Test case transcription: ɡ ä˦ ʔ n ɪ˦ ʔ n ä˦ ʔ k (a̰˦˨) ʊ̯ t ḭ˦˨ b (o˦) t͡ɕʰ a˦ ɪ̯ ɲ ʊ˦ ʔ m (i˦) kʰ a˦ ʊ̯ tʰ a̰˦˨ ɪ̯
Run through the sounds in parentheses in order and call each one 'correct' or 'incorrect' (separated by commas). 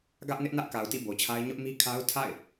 incorrect, incorrect, correct